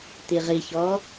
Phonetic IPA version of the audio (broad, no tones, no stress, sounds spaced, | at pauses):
t̪ i ʁ i ç ɔ